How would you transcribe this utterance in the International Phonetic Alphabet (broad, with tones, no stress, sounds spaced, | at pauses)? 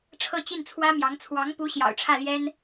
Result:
ʈ͡ʂʰ ɤ˥˧ t͡ɕ i˥˩ n t͡sʰ w ä˥ m j ɑ˧˥ ŋ t͡sʰ w ɑ˧˥ ŋ p u˧˥ ɕ j ɑ̰˨˩ ʊ̯ ʈ͡ʂʰ ä˥˩ l j ɛ˥ n